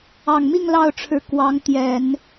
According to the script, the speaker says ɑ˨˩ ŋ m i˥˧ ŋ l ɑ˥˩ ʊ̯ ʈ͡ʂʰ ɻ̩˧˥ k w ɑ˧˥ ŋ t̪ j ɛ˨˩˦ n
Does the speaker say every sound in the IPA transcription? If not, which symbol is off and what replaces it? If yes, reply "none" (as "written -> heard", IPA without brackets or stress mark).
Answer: none